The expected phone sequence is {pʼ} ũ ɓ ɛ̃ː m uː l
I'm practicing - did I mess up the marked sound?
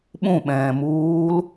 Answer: yes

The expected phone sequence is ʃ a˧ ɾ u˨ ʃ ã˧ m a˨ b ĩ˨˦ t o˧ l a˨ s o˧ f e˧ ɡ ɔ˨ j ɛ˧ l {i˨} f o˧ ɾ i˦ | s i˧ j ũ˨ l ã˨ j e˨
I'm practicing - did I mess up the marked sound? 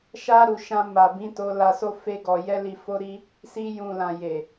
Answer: no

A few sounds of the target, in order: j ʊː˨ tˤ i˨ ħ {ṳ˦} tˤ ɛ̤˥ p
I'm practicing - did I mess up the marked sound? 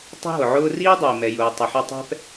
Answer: yes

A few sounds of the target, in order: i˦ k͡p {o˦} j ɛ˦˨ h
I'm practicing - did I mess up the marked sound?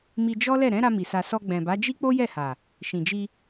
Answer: no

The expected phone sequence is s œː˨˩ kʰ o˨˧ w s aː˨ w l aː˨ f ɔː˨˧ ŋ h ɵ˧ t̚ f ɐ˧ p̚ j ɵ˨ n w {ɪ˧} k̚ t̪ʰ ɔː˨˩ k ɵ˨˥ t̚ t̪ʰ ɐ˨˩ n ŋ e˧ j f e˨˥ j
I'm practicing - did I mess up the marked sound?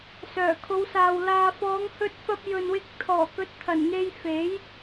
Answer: no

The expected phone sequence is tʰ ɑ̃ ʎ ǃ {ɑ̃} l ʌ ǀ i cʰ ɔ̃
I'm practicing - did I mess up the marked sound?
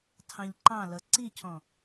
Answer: no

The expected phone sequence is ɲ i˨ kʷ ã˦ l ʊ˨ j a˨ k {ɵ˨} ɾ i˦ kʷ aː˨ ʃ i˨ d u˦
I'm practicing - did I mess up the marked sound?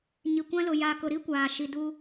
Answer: yes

